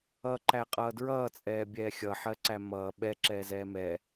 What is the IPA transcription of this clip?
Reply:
ʌǃæ qʼʌːdɹʌːt͡sʼɛːbʲɛː xʲʌħɜǀæ mʌː ɓɛ ǁɛːzɛːmɛ

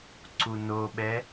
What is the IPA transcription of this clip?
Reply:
ǀunoɓɛ

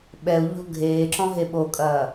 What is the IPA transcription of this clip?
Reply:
ɓɛu̯ʎɔ̤ ɡʱeːǁɔ̃ ɦeɓokʼɐː

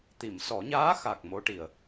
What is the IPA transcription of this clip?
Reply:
t̪i˨˩˨msɔ˨˩˦ɲaː˧˥xa˨˩k̚ mo˧˥ʈi˨˩ə̯

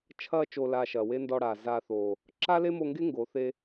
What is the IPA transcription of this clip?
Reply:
t͡ʃʰɐː˧ t͡ʃoː˨laː˨ ʃɐː˨we˦ndɔ˧ɽaː˨ zaː˧θoː˨ | ǁa˦le˦mo˧ŋɡe˦ ŋɡo˨˦θe˦

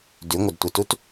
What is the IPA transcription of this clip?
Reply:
dʉŋʷɪdtʷɪtut

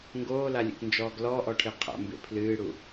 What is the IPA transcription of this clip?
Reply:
ŋɡoːlalʲḛknd͡ʒɔːɡ lɔʔɔʈʰe qʰa̰mbḛ pʰlɨːɽu

